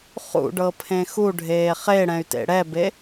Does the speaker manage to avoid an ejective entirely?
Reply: yes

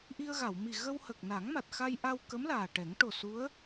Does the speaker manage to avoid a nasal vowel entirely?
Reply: yes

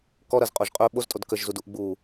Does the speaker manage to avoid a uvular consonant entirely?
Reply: no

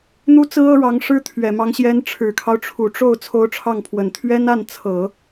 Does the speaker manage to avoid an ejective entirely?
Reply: yes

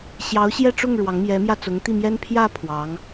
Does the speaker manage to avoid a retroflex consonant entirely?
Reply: no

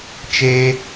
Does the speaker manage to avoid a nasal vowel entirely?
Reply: yes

